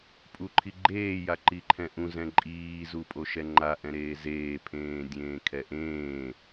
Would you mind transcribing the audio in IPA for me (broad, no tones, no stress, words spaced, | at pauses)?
pʼuǃʰiɡ͡ǃeː jaǃiǃʰɛ̃ʔũ zɛ̃ǃʼiː zupʼoʃɛŋ͡ǃa ʔɛ̃ɾeːzeː pʰẽːdʲẽːkʰɛʔẽː